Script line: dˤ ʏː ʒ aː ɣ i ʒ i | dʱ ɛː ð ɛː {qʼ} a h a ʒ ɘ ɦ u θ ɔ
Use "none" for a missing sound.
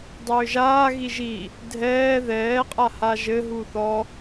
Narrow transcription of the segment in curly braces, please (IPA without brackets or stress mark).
qʼ